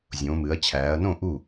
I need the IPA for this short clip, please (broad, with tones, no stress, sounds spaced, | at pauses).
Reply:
zʲ õː˩˧ m ɨ˩˧ ɐ̯ t͡ɕʰ æː˩˧ ɐ̯ n õ˥˩ ʔ u˥˩